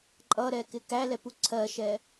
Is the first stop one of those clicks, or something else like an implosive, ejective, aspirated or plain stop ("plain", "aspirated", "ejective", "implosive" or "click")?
click